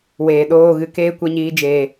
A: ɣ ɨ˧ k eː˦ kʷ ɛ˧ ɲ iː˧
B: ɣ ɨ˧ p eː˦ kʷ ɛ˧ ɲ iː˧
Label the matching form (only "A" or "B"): A